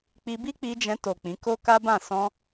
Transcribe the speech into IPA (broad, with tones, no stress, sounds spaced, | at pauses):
k͡p i˧ b i˦ k͡p i˧ d͡ʒ ɛ̃˧ t o˨ k͡p ĩ˨˦ k o˦ k a˦ b ã˦˨ s ɔ̃˧